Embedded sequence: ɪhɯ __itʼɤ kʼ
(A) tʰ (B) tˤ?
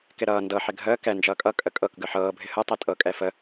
B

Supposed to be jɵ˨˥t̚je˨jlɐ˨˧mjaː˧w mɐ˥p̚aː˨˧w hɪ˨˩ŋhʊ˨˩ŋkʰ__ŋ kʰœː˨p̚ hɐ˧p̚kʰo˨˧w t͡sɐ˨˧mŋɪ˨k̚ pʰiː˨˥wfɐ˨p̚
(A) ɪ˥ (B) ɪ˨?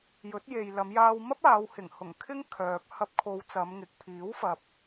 A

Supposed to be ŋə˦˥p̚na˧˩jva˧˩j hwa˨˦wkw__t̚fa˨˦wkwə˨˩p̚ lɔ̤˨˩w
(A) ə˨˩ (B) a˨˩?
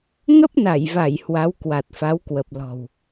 B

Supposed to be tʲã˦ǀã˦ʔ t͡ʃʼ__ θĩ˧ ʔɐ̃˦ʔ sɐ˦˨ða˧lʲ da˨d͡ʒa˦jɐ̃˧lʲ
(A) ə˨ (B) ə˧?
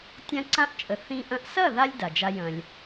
A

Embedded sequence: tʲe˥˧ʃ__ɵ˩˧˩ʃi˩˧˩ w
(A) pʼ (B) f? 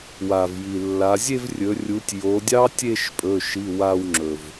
A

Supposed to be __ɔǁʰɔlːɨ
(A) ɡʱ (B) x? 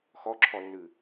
B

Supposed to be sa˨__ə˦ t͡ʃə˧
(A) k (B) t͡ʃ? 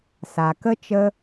A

